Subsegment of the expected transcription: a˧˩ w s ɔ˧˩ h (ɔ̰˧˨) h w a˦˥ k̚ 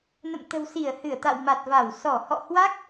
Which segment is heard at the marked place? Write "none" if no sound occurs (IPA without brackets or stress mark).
ɔ̰˧˨